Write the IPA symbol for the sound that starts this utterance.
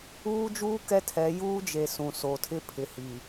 uː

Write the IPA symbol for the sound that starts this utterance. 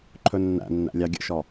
ǃʰ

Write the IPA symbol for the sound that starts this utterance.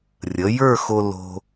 rʲ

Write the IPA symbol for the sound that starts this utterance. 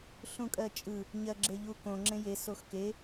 ɬ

